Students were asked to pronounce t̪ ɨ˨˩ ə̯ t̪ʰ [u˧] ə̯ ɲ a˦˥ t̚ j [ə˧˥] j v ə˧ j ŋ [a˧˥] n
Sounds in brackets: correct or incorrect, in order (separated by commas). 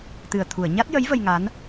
incorrect, correct, correct